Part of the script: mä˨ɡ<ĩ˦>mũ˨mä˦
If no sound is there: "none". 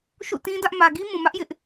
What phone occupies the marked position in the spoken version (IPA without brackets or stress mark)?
i˦